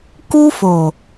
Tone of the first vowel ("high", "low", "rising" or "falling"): high